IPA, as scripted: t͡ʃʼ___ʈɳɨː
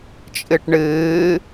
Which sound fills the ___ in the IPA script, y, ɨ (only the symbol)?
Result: ɨ